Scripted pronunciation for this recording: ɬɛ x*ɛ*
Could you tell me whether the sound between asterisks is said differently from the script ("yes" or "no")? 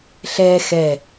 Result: no